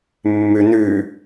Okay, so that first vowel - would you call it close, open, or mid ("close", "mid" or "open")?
close